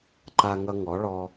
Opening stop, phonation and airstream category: click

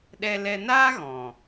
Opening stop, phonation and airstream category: implosive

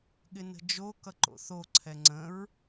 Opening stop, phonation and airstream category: implosive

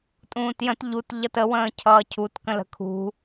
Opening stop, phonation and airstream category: ejective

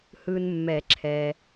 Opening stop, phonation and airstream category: click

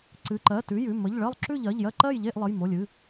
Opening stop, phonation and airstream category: click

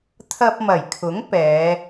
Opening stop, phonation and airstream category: aspirated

